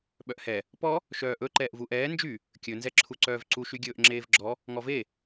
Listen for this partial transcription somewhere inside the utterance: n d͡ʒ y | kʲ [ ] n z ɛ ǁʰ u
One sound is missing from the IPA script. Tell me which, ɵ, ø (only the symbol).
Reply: ɵ